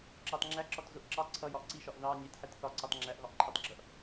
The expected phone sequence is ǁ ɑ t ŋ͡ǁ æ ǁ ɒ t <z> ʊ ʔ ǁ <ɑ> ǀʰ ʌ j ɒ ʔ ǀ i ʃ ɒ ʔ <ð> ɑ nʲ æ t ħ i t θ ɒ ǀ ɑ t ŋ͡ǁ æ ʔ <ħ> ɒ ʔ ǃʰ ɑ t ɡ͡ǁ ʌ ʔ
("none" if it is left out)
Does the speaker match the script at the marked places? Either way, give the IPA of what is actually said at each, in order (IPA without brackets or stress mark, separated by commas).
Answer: z, ɑ, ð, ɣ